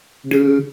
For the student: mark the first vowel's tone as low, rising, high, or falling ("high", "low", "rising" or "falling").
high